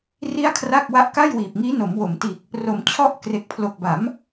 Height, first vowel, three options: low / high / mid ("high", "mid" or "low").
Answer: high